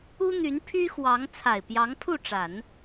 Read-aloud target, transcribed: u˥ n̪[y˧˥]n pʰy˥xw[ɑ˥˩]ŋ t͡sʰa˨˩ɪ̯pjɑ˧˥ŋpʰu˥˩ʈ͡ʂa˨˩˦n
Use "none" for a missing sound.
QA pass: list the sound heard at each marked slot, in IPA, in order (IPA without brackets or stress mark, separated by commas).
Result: y˧˥, ɑ˧˥